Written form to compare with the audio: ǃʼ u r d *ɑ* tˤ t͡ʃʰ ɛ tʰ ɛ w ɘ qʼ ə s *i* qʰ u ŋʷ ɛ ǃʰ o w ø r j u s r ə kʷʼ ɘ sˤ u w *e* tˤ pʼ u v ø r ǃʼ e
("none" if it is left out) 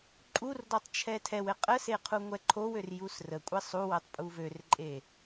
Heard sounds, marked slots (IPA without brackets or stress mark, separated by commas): ɔ, e, ɛ